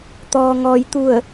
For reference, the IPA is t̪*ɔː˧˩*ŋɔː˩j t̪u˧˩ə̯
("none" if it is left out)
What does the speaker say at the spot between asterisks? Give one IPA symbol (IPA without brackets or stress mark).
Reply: ɔː˩